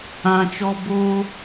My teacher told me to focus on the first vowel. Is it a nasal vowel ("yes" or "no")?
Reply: yes